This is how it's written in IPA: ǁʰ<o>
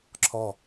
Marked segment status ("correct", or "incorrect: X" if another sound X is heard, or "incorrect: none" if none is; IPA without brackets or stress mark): incorrect: ɔ